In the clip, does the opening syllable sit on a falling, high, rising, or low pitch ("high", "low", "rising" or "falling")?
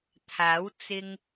rising